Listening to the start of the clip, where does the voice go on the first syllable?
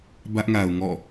high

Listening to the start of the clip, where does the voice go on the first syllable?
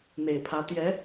low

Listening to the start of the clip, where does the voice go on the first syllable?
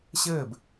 falling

